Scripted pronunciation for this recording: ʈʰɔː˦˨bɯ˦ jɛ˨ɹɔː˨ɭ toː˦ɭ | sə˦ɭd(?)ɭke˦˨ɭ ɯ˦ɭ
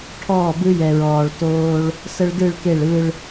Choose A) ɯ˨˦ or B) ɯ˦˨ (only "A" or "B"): B